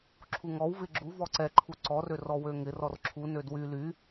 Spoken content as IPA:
ǁʰ u ŋ ɔ w v ɪ ɡ͡ǁ u v ɔ ǀ ɛ ǃʰ u ǀ ɔ r ø r ɔ w ø ŋ ɪ r ɔ r ǁʰ u n ø d w y l y

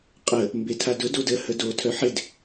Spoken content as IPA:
qʼ ə | m b e tʰ a d ʊ d o d ə h ə d o tʰ œ ħ ɪ d

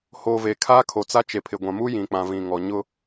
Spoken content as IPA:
h o˨ v e˨ kʰ a˦ kʰ o˨ t͡s a˦ t͡ʃ e˨ pʰ ɪ˨ ɡʷ ã˨ m u˦ j ĩ˨ k͡p ã˨ v ĩ˨ ŋ ɔ˨ ɲ ʊ˦

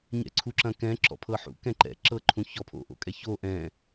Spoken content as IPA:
ɲ ɛ̰ ǀʰ u ǁ ɐ̃ k ɛ̃ ǁ ɔ̰ pʰ ɤ ħ ṵ k ɛ̃ ǃ ɛ̰ ǁ ɤ ǃʰ ũ ç ɔ pʰ o̰ ʔ o̰ kʼ ɛ ç o ʔ ɛ̃

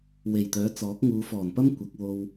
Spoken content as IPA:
w e˨˩ j t̪ œː˨˥ t͡s ɔː˨˥ k̚ ŋ uː˨˧ f ɔː˨˩ n p ɐ˥ m kʷ ɐ˨˥ k̚ w o˧ w

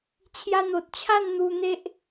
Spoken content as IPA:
t͡ɕʰ j a˧ n̪ o˨ t̚ t͡ɕʰ a˥˧ n n̪ u˧ n̪ e˦ ʔ

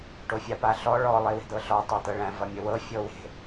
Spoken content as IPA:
ʈ o fʲ a p a ɬ ɔ ɭ ɔ lˠ e w e̤ d̪ ɤ ɬ ɔ tˤ æ t̪ ɤ ɭ æ̃ v ʌ mʲ ə w ɤ fʲ ɤ w e̤

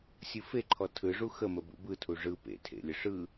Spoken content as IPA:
sʲ ɯ f e ǃʰ ɔ tʰ ɯ ʐ u x ə m ə b ṵ b ɯ tʰ u ʐ ɯ p ḛ tʰ ḛ lʲ ə ʂ ɯ

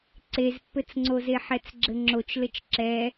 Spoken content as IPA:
ǀ e z pː ɘ t͡s ŋ͡ǀ o z e ħ ɛ t͡s ɡ͡ǁ ɘ ŋ͡ǁ o t͡ʃ l ɘ t͡ʃ ǁ ɛ

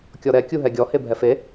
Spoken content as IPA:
kʲ ɔ ɾ ɛ kʲ u ɦ ɛ ɡʲ ɔ h e bʱ ɛ f e

